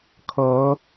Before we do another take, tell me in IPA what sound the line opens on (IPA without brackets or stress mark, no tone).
kʰ